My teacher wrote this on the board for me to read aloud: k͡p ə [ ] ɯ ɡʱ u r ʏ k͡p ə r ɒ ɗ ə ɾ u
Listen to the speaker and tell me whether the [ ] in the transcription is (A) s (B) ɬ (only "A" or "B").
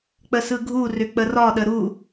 A